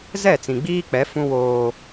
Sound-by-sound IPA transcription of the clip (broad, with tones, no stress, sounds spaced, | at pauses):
z ɛ˦˨ t͡s ĩ˨ ɡ͡b iː˦ k͡p ɛ˨˦ f ũ˦ w oː˦